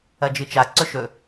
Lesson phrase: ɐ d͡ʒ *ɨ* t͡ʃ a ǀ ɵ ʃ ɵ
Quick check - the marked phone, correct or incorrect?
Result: correct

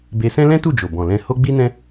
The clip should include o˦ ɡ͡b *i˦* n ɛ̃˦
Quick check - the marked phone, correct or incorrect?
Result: correct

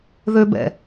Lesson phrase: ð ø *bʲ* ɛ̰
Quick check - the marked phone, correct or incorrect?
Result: incorrect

